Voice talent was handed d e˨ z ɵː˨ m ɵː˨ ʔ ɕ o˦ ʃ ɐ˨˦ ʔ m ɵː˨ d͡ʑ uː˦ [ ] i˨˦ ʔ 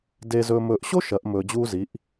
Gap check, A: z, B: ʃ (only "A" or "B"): A